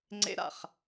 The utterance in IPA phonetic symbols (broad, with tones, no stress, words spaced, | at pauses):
ŋ͡ǀḛ˧ ɾa̰˨χ